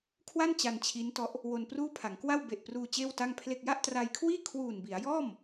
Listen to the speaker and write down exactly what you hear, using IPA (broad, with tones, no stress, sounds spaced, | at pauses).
kʰ w a˥˩ n t͡ɕ a˧ n t͡ɕʰ i˦˥ n t ɔ˦˥ ʔ | w o˧ n p r uː˥˩ pʰ a˩˦ ŋ k w a˥˩ w b e˨˩ ʔ p r uː˧ t͡ɕ eː˥˩ w t a˥˩ ŋ pʰ l e˥˩ k̚ j a˥˩ ʔ t r a˧ j kʰ w iː˥˩ kʰ w uː˨˩ n b i˩˦ a̯ j ɔː˥˩ m